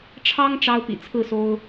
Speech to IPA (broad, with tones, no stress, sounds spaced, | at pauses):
ʈ͡ʂʰ ɑ˦ ŋ ʈ͡ʂ ɑ˦ ʊ̯ p ḭ˨˩ t͡sʰ ɹ̩˥˨ s o˦ ʊ̯